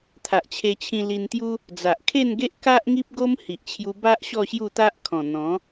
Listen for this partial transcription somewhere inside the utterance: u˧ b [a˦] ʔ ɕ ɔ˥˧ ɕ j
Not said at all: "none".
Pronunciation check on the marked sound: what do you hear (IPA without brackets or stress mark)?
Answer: a˦